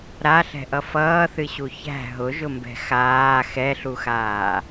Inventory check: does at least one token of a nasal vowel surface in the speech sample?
no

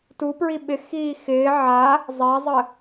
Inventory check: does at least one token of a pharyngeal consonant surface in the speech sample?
yes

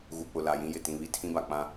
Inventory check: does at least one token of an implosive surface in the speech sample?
no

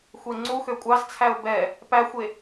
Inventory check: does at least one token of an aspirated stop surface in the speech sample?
yes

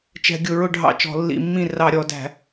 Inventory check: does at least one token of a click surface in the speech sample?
no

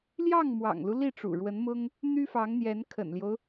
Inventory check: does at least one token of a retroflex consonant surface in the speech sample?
yes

